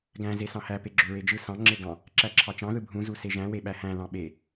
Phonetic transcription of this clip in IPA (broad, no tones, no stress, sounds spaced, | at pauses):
ɡ æ̃ z e s ɑ̃ h æ p e ɡ͡ǁ ø ɹ e d͡ʒ ɯ s ɑ̃ ŋ͡ǁ e ɡ ɑ̃ | ǁ æ ǁʰ ɑ t͡ʃ ɑ̃ ð ɯ bʱ ũ z u s e ʒ æ̃ w e ɓ æ h æ̃ l ɑ̃ ɓ e